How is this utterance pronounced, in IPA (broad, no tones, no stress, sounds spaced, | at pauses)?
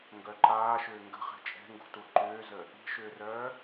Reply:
ŋ ɡ œ ǃ aː ʃ ʏː ŋ ɡ ə̤ χ ɛ̤ t͡ʃʼ ɛ̤ ŋ ɡ ṳ t u ǃ ʏː z ə | i̤ ʃ ʏː r œː